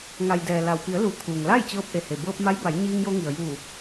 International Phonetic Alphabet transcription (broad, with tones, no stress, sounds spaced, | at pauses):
ŋ a˩ j d ɛː˩ l a˩ w p i˩˧ ə̯ l u˩˧ t̪ʰ uː˩ ŋ l a˥˨ j t͡ɕ ɤː˧ p̚ ʔ e˩ h e˩ b ɤː˧ p̚ m a˧˥ j b a˩˧ j ɲ iː˧ ŋ j o˧ ŋ i˩ ə̯ j uː˧˩